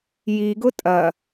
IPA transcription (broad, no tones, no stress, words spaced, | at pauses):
jiɡʊ tʼɐ